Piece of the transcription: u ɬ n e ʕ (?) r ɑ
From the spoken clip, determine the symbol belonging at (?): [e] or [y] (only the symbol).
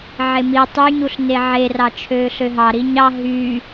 e